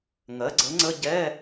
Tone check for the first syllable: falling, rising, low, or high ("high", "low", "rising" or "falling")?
rising